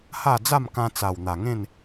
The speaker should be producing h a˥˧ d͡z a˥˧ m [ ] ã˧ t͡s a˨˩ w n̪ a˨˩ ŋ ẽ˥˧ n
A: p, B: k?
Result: B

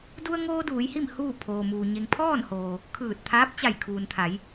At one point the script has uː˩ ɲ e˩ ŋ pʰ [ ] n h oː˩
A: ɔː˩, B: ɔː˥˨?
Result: B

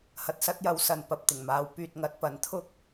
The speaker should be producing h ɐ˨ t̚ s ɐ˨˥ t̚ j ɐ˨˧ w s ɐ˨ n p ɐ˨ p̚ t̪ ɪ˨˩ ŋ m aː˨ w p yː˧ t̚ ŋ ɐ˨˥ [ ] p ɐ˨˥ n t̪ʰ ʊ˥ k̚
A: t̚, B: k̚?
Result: A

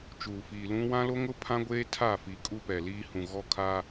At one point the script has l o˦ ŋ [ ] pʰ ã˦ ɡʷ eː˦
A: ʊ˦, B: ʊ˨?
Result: A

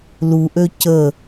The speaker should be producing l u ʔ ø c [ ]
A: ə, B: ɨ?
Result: A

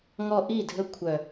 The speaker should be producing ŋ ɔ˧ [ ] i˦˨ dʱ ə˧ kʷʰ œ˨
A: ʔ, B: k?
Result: A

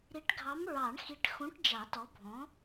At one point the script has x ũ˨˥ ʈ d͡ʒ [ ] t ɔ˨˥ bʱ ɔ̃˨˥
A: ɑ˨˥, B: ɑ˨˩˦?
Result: B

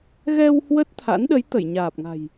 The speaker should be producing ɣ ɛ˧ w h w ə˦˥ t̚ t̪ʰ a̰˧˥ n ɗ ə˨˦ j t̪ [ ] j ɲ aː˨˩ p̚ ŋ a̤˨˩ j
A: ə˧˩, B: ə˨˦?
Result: A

